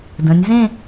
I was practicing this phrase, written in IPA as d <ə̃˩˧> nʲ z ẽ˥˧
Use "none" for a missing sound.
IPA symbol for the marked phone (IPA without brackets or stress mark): ə̃˩˧